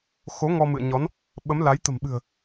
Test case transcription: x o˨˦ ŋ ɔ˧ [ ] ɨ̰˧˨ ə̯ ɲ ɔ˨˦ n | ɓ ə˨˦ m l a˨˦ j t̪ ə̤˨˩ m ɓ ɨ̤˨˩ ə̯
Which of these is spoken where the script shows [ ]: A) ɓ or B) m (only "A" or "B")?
B